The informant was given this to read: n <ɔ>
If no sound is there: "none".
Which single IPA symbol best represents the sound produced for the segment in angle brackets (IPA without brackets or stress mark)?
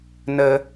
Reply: ə